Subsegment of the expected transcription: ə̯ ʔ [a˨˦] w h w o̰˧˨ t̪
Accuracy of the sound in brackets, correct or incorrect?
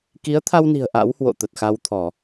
incorrect